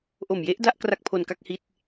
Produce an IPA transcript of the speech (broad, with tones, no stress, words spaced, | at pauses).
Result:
ʔo˨˩mje˦˥ʔda˥˩ʔ kra˥˩k̚pʰo˧nka˥˩k̚ hi˥˩t̚